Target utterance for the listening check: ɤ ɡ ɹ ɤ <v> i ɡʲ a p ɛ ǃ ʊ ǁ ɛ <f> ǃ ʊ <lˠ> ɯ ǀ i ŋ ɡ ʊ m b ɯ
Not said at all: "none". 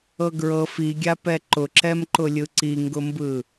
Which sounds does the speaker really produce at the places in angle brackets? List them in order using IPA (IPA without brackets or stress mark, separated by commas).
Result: f, m, lʲ